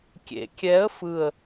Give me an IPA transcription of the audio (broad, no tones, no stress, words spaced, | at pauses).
kʲḛ kʲɛə̯ fɯə̯